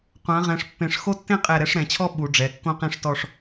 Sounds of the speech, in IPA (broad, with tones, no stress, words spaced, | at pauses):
qʷã˩˧ʁɛ̃˩˧ʂ pːẽ˧˩ʂ xo˥tːẽ˥ qʼɛ˧˩ɾɛ˧ʂ ɾɛ̃˩˧t͡ɕʰɔ˥˧ ɓu˩˧ ɖ͡ʐɛ˩˧ kːõ˥qẽ˥˧ʂtɔ˥˧ʂ